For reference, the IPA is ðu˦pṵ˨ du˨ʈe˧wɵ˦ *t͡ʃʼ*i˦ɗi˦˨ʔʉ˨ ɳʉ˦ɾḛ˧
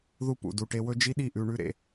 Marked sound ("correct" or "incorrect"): incorrect